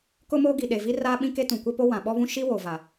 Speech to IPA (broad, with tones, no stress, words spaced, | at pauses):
kʊ˦moː˦ɡi˨ ɗe˨vi˦raː˦ɓĩ˦ ke˦tũ˨ kʷɛ˦po˦ wã˨ɓɔ˦βũ˦ ʃi˦wo˨va˨